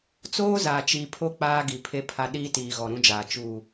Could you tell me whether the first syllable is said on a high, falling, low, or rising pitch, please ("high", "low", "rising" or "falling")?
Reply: high